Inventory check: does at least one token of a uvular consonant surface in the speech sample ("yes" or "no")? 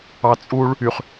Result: yes